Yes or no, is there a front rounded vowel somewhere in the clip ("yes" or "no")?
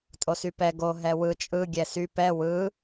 yes